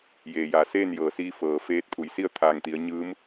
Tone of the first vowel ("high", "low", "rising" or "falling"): low